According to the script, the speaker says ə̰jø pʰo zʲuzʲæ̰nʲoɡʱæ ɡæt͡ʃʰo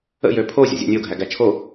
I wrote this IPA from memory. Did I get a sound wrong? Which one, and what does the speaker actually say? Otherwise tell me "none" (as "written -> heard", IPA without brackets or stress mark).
u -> ṵ